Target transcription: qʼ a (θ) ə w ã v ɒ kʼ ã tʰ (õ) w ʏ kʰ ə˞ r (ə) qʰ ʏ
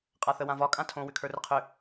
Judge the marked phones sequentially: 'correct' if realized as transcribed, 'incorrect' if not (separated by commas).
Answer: correct, correct, correct